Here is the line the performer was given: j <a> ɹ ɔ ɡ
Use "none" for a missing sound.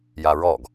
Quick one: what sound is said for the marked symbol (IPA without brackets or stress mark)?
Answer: a